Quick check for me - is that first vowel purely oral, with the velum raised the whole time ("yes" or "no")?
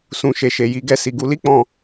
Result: no